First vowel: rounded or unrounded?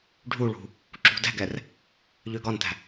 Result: rounded